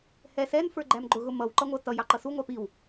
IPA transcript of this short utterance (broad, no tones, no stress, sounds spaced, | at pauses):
h ɛ s ɛ n f ə˞ ɡ͡ǃ æ m ɡ͡ǃ ʊ ɣ ʊ m ʌ w ǃ ʌ ŋʷ ʌ t ʌ j ɑ ǃ ʌ s u ŋʷ ɑ p i w